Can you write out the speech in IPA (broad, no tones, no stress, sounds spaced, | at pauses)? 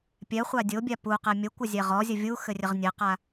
pʲ ɛ χʷ a dʲ o bʲ a p u q ɛ mʲ ə kʷ ɐ zʲ ɛ ʁ ɔ zʲ ə vʲ u x ɘ rʲ ə ʁ nʲ ɘ q a